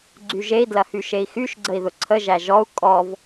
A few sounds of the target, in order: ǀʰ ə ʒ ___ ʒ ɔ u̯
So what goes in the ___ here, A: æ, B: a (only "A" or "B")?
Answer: A